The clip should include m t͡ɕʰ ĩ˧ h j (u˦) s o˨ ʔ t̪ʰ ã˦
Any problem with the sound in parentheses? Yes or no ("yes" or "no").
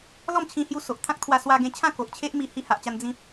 yes